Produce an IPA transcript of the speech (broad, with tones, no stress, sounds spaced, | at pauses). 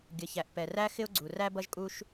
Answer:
ɡʲ ə˩ ç æ˩ ʔ p ɛ˩ r æ˥ x ɪ˥ ʊ̯ ɡ͡ǀ u˩ r æ˥ b ʌ˥ ʒ kʼ u˥ ʃ